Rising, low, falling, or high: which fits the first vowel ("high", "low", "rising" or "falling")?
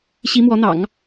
rising